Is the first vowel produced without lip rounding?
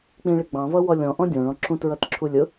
yes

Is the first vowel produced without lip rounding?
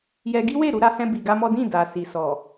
yes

